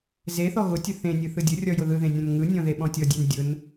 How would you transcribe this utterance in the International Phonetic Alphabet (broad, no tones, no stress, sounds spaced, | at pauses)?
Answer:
z e θ ɔ ɣ ʊ tʲ ʊ θ ẽ nʲ ɯ θ ɯ dʲ ʊ rʲ ɔ j ʊ ð ɯ ð ẽ nʲ ɔ̃ n ŋ ɯ nʲ ɔ̃ ð e ɓ ɔ̃ tʲ ɔ dʲ e n dʲ ʊ n